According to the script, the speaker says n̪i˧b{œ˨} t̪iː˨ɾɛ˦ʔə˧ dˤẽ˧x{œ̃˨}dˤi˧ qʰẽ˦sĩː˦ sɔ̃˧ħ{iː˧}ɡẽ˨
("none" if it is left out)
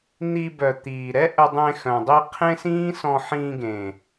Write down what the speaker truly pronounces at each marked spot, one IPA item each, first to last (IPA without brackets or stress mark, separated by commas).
œ˨, œ̃˨, ĩː˧